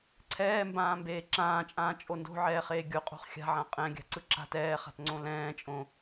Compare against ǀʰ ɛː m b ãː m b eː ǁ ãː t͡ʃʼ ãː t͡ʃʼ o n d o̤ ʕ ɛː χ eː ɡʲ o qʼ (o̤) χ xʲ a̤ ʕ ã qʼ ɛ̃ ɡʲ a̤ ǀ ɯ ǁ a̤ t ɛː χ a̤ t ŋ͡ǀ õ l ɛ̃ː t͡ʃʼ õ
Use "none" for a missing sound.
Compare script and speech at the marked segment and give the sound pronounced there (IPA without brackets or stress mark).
o̤